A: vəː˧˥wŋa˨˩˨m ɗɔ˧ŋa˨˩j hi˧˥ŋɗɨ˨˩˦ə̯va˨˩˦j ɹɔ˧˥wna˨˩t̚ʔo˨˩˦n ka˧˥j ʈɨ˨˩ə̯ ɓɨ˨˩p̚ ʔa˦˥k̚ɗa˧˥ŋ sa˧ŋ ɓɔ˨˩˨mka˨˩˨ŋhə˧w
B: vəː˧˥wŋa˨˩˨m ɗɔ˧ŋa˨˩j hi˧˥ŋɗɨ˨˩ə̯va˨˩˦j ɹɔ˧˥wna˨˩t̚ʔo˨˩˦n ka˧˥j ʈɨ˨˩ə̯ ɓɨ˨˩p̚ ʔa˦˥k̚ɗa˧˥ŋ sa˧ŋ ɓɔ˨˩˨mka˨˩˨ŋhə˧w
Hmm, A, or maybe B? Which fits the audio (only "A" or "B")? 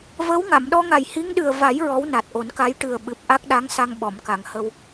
B